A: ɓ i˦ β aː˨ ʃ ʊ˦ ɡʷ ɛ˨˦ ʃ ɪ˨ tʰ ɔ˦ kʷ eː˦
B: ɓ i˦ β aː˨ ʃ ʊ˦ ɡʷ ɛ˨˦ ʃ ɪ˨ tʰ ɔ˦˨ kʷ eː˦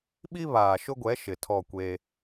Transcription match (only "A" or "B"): B